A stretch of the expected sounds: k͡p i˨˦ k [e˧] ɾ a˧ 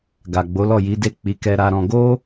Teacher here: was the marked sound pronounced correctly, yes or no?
no